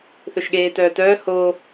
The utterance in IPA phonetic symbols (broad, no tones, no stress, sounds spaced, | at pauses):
θ ɵ ʃ ɠ eː t œː t œː h o